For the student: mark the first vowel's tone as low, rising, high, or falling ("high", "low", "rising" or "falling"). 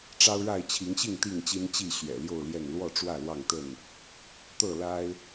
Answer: high